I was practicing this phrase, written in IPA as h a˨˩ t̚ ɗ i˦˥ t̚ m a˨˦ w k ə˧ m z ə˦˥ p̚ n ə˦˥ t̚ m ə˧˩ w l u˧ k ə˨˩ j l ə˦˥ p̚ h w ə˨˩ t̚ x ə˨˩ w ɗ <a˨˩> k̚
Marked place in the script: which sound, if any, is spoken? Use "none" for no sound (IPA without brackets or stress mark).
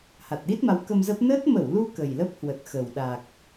a˨˩